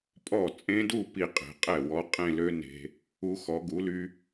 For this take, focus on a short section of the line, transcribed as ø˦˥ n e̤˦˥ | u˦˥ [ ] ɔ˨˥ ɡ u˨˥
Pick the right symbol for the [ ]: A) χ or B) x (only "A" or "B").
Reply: B